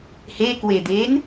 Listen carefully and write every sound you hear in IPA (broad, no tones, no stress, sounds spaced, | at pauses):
h e k w e d̪ eː n